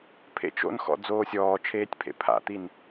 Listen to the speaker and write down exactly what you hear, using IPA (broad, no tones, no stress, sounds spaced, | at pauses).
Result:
pʰ ḛ t͡ʃ o̰ n x ɔ̰ d͡z oː sʲ ɔː t͡ʃʰ eː tʲ pʰ ḛ pʰ a̰ t̪ i n